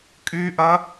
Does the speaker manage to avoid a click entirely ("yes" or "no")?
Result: yes